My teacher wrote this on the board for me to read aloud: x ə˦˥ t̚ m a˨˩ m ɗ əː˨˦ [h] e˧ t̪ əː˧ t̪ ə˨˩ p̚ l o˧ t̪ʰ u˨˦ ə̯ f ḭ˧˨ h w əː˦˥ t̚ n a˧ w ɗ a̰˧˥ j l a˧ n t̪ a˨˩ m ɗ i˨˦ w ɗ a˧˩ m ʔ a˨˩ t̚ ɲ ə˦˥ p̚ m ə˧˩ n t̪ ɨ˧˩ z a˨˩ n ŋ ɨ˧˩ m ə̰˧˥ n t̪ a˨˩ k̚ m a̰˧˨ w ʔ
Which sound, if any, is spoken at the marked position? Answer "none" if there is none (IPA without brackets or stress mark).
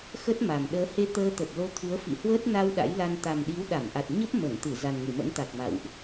h